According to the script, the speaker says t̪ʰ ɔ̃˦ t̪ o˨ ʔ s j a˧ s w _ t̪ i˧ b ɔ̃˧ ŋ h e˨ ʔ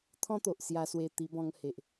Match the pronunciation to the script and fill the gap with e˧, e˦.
e˧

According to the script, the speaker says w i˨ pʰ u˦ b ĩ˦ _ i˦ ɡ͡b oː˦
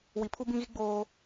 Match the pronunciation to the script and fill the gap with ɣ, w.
ɣ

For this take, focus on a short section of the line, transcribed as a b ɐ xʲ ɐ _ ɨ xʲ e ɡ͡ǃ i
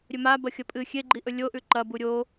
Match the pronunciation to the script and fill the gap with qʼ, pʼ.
pʼ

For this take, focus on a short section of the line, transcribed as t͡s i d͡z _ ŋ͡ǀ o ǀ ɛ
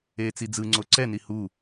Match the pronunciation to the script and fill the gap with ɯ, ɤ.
ɯ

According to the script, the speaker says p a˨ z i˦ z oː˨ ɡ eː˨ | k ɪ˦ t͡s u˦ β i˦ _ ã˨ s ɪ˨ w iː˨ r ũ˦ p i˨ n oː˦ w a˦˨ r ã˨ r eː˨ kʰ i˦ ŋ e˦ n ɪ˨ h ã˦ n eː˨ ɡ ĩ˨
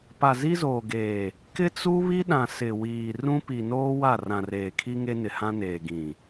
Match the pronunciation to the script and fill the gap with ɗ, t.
ɗ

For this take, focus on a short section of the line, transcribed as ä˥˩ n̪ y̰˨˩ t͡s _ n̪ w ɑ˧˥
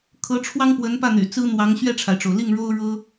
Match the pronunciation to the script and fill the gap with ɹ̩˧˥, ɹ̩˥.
ɹ̩˥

